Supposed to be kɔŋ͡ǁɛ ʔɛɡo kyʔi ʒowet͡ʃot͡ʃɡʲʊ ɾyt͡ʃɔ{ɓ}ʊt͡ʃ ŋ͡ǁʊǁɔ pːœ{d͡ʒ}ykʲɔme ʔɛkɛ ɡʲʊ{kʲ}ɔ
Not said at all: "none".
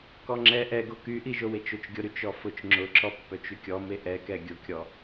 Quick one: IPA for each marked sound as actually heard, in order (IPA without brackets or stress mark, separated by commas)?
f, t͡ʃ, kʲ